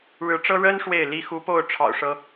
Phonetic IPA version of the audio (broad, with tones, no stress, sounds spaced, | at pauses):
ɻ ɻ̩˧˥ ʈ͡ʂ ɤ˥ ɻ ə˥ n ʂ w e˥˩ ɪ̯ l i˥ x u˧˥ p o˥˩ ʊ̯ ʈ͡ʂʰ ɑ̰˨˩ ʊ̯ ʂ ɤ˥